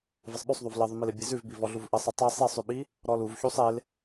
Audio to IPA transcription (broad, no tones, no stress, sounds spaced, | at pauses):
v ɘ sˤ ɓ ʉ sˤ ðˤ u v l ɘ ðˤ ʉ m i l e bʲ e z ʉ v b i v ɔ ɮ u v ʔ ɘ sˤ i tˤ i sˤ i sˤ ʉ ɓ i | ɾ ɔ l u v ç u sˤ e l